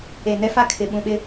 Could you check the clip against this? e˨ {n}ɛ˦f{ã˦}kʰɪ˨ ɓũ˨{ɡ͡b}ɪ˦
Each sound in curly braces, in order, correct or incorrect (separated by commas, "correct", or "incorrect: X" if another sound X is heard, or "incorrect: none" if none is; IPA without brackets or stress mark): correct, incorrect: a˦, incorrect: ɓ